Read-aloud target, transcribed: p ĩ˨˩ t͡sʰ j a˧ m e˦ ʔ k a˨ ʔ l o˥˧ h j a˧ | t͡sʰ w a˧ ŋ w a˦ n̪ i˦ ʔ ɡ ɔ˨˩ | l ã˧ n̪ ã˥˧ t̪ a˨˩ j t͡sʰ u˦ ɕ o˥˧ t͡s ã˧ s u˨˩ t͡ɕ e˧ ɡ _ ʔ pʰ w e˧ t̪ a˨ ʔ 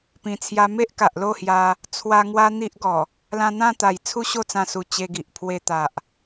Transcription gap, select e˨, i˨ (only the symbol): i˨